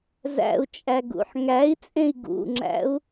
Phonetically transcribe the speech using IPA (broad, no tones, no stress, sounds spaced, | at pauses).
z æ̰ u̯ t͡ʃʼ æ ɡ ṵ ħ ŋ æ i̯ t͡sʼ ẽ i̯ ɡ ṵ ŋ͡ǁ æ̰ u̯